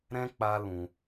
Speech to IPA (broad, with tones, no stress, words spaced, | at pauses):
ɾɛ̃˦ k͡pa˦lũ˧